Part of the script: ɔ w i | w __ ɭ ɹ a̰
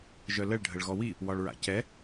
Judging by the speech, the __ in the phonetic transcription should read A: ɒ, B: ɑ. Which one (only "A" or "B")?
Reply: A